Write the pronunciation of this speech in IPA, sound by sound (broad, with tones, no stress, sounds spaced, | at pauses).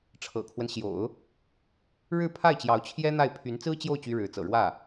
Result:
ʈ͡ʂʰ ɤ̰˨˩ kʰ w ə˦ n ɕ j o̰˨˩˦ ʊ̯ | ɻ ɻ̩˥˧ pʰ a˥˩ ɪ̯ t͡ɕ j ɑ˧˥ ʊ̯ t͡ɕʰ j ɛ˥ n̪ a˥˩ ɪ̯ pʰ y˧˥ n t͡s ɹ̩˥ t͡ɕ j o˥˩ ʊ̯ t͡ɕ y˥ ɻ ɻ̩˧˥ t͡s ɤ̰˨˩ ɻ w ä˥˩